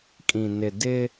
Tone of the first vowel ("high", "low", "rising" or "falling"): low